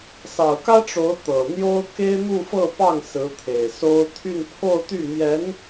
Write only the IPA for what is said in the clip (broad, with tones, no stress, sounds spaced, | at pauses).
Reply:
s ɑ˨˩ ʊ̯ k ä˥ ʈ͡ʂ o˧˥ ʊ̯ t̪ ɤ˨˩ n̪ j o˥ ʊ̯ k e˥ ɪ̯ n̪ u˥˧ f ɤ˥˧ p ɑ˥˩ ŋ s ɹ̩˧˥ t̪ʰ e˨˩ ɪ̯ s o˥ ʊ̯ t̪ʰ y˥˧ n pʰ o˥˧ ʊ̯ t̪ y˥˩ m j ɛ˧˥ n